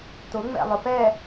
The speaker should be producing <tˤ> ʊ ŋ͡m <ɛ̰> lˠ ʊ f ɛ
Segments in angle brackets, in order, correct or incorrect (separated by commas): incorrect, correct